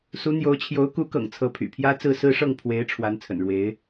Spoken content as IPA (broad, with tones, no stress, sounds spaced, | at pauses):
s u˧˥ n̪ j o˧˥ ʊ̯ t͡ɕʰ j o˧˥ ʊ̯ k u˧˥ k ɤ̰˨˩ ŋ t͡sʰ ɤ˧˥ pʰ y̰˨˩ pʰ j ä˥ t͡s ɹ̩˥˧ s ɹ̩˥˧ ʂ ɤ˥˩ ŋ pʰ w e˧˥ ɪ̯ ʈ͡ʂʰ w a˧˥ n t͡sʰ ə̰˨˩ n ɻ w e˧˥ ɪ̯